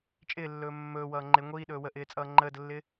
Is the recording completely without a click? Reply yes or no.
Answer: no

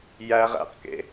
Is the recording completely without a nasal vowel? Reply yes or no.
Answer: yes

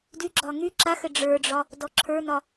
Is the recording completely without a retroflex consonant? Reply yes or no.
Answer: no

